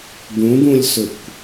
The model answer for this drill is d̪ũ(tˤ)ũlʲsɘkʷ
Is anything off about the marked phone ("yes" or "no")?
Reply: yes